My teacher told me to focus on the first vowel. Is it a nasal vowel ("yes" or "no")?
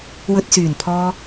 no